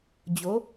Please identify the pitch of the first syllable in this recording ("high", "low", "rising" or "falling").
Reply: rising